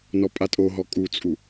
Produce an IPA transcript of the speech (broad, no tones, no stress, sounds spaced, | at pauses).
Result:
n ɔ pʼ a tʼ o ɦ ɔ kʼ u t͡sʼ u